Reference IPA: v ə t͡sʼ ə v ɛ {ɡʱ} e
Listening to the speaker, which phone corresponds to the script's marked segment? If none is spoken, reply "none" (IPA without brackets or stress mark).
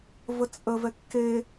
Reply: kː